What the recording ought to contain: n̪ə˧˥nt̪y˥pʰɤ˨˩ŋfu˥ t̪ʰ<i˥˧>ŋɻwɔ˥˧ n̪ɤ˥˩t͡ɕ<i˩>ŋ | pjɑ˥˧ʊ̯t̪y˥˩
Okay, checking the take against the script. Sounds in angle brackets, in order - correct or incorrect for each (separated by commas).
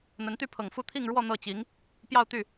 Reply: correct, incorrect